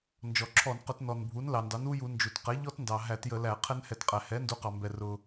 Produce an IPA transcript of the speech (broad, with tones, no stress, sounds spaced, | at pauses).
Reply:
n d͡ʒ ɔ˩ ǁʰ ɔ˧˩˧ n q ʊ˧˩˧ t n ɔ˩ n bʱ u˩˥ n l ɑ˩ n d ɑ˩˥ n u˦˥ j u˧˩˧ n d͡ʒ u˩ t q ɛ˩˥ ʎ ɔ˦˥ t n d ɑ˩ ɦ æ˧˩˧ t j ə˧˩˧ l æ˧˩˧ qʰ ɛ˦˥ n h ɛ˧˩˧ t qʼ æ˩ h ɛ˩˥ n d u˩˥ q ɑ˩ m b ɛ˩ r ʊ˩